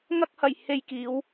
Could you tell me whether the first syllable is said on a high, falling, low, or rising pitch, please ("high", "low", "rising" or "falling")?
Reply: high